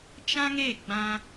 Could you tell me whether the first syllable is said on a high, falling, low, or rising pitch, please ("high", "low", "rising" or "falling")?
high